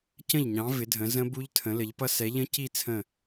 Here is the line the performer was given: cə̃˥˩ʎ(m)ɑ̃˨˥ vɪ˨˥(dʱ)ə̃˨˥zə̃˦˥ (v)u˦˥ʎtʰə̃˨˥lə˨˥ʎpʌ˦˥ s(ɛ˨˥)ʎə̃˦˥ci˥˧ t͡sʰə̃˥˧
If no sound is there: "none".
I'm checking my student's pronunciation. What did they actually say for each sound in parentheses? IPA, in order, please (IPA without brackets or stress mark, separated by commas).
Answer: ɲ, dʱ, b, ɛ˨˥